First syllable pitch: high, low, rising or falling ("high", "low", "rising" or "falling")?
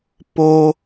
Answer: low